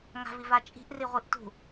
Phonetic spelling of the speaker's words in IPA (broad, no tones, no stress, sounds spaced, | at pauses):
ŋ a̤ v i v a t͡ʃʼ i̤ ʔ r i ʁʷ i ʔ t ṳ